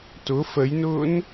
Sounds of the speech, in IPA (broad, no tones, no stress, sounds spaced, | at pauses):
t ʊ f ə j n ʊː n